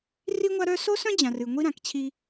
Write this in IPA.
ri˦ŋʷa˦ɾœ˦ so˦sœ̃˦d͡ʑã˨rɨ˨ ŋʷi˦ɾã˨kt͡ɕʰi˦

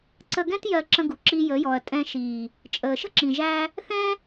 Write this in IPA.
ǀə˧ɡɛ̃˦t jɜ˧ǁə̃˧ɡu˨ ǁi˧jə˨˦jɔ˨ɐ̯ tʼɛ̃˧ʃiː˨ | t͡ʃʼəː˨ʃə̤˦ǁĩ˨ʒæ˧ | θɛ̃˦

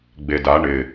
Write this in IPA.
ɡ͡beda ɳɪ

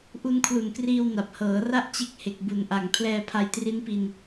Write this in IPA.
ʔu˧nkʰlu˨˩nkriː˧w na˨˩p̚hɤː˩˦ra˥˩ʔ t͡ɕe˦˥k̚he˨˩k̚bu˩˦nʔa˨˩ŋ pʰlɛː˧pʰa˧jtri˦˥npi˧n

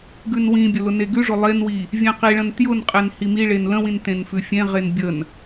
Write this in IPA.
ɡʉnwĩbʲə lʊneɡʉʐʊ lˠenwi | vʲẽqiɭə̃n tjʊnqʼen himiɭen lə̃wĩn tẽnfʉfʲẽʁen bʲən

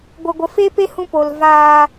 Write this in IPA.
ɡʷə˨ɡʷə˨ fe˦pe˦hũ˧ po˨l vaː˧

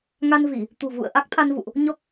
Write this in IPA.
ŋa˧nvi˧˩˨ | t̪ṳ˨˩vṵ˧˨ə̯ ʔa˦˥k̚t̪ʰa˧nvṵ˧˨ʔ | ɲɔ˦˥k̚

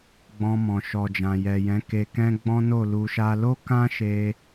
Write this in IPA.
ɡ͡bɔ̃˧mɔ̃˨ʃɔ˨d͡ʒã˨ jɛ˨jɛ̃˨˦ ke˧kɛ̃˦ ɡ͡bɔ̃˦no˦˨lu˧ʃa˦ lo˦kã˦ʃe˧

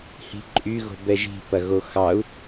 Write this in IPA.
hi̤ǃʼy ɣo̤bɛʒi̤ pɐɣoxɑu̯

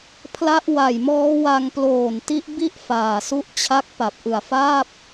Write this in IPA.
pʰla˦˥ʔwa˨˩jmɔː˦˥ wa˧ŋploː˨˩n ti˦˥ʔbi˥˩ʔ faː˨˩su˥˩ʔt͡ɕʰa˥˩k̚ pa˨˩p̚ʔɯ˨˩a̯faː˥˩p̚

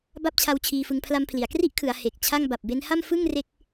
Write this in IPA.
ba˥˩p̚t͡ɕʰa˦˥w t͡ɕʰiː˧fɯ˧ŋpʰla˦˥mpʰli˩˦a̯ kri˥˩ʔkʰɯ˩˦a̯ he˨˩k̚t͡ɕʰa˥˩ŋ ba˨˩p̚be˦˥nha˥˩m fɯ˥˩ŋre˦˥k̚

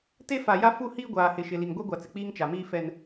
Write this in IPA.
te˦fa˨ja˦ fu˦˨hiː˦ ɡʷaː˨hɪ˨ʃɪ˨ li˨ŋɡʷɛ˦ɡʷa˨t͡sɪ˨ k͡piː˦ŋt͡ʃa˨miː˦ fɛ˦n

